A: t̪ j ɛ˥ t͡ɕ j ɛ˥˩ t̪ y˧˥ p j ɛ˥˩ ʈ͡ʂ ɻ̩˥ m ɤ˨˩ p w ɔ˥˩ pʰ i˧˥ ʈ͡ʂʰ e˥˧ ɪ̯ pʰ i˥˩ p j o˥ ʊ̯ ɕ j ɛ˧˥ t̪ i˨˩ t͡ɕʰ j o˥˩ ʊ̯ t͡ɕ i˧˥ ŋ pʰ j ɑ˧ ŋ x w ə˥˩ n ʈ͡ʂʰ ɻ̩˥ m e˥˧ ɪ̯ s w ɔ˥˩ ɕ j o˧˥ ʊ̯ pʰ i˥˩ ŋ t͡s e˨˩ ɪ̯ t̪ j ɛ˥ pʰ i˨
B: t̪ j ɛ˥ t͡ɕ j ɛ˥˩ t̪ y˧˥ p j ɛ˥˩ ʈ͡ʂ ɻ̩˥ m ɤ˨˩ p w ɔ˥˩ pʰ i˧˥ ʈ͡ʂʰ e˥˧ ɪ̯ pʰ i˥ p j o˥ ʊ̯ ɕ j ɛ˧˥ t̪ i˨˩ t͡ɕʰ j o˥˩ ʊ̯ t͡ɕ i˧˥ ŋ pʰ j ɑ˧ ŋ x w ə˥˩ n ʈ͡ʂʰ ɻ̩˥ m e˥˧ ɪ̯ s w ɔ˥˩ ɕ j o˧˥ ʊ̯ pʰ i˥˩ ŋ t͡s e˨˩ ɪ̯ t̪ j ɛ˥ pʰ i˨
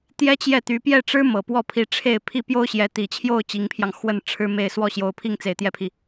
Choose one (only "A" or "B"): A